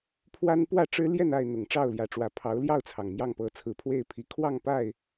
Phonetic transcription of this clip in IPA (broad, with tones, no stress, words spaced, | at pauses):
pʰwa˦n pwä˥˨ ʈ͡ʂɻ̩˦ ljɛ˥˨n a˥˨ɪ̯ n̪ʊ˨˩ŋ ʈ͡ʂɑ˥˨ʊ̯ljä˨˩ʈ͡ʂwä˨˦ pʰɑ˨˦ʊ̯ljɑ˥˨ʊ̯t͡sʰɑ˩ŋ mjɑ˥˨ŋpɤ˨˦t͡sʰɹ̩˨˩pʰwe˥˨ɪ̯ pʰi˨˩kʰwɑ˥˨ŋpa˥˨ɪ̯